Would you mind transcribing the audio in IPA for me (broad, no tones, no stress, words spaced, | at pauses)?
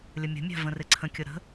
lʲəmʲə̤mʲa̤ və̃rɪǀʰə̃kʲʊ ɾə̤